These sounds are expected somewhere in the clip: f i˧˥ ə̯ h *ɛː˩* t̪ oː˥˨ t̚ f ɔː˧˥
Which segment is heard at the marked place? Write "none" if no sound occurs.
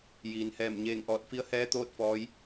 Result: ɛː˧˥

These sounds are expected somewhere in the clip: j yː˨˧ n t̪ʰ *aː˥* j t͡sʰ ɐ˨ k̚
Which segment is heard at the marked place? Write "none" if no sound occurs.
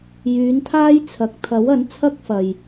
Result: aː˥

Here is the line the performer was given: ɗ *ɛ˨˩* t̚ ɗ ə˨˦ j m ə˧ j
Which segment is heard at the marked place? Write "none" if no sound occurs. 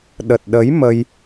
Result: ə˨˩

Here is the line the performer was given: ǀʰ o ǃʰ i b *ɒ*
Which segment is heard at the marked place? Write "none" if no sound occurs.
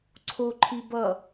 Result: ʌ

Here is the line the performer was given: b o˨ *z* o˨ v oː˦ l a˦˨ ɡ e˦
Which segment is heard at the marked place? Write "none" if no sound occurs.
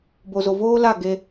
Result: z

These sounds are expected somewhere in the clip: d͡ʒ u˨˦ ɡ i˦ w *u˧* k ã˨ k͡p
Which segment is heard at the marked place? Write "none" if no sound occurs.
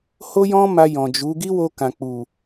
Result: o˧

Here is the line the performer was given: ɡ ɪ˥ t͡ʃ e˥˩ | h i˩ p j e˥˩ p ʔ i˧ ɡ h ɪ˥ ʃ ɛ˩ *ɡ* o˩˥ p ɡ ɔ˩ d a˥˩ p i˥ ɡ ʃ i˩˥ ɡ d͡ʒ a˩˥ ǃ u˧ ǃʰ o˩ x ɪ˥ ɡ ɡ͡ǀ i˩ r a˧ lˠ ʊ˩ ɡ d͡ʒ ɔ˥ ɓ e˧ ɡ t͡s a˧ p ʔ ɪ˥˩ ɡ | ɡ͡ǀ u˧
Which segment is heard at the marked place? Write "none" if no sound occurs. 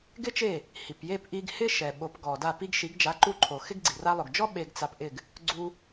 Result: ɓ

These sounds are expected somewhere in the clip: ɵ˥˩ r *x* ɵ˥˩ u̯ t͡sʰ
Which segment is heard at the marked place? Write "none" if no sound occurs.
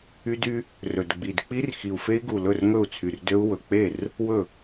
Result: ŋ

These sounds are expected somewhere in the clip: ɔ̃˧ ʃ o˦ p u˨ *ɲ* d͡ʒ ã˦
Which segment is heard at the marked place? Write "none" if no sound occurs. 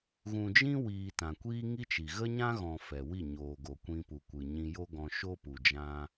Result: none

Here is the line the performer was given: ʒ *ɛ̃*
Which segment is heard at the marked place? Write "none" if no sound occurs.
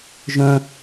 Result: œ̃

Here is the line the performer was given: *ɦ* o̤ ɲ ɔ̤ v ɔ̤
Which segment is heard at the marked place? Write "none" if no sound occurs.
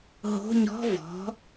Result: ɦ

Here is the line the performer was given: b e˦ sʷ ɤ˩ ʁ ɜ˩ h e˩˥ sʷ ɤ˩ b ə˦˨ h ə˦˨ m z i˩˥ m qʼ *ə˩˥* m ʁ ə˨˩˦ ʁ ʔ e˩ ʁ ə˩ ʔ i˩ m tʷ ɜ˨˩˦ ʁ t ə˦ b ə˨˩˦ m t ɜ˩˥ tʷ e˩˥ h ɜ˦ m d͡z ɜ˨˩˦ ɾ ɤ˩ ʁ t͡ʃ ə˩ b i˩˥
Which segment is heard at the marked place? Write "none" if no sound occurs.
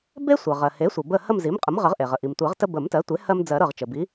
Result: ə˩˥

